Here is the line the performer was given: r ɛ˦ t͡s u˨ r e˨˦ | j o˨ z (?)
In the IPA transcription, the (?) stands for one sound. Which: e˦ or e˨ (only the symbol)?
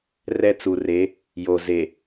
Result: e˨